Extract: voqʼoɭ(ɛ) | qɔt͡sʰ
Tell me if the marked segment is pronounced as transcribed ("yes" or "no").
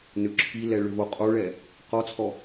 yes